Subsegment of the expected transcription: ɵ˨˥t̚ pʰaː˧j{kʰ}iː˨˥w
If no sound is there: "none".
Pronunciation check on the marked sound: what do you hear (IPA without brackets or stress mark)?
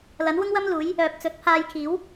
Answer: kʰ